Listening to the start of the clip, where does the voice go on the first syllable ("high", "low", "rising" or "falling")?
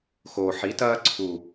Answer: low